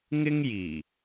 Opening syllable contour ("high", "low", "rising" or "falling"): high